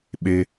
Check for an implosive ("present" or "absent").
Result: present